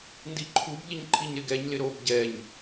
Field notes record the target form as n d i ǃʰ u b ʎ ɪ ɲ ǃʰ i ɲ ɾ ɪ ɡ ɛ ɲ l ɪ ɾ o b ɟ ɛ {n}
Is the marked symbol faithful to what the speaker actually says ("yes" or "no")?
no